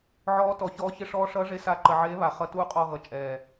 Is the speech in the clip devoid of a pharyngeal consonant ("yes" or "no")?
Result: no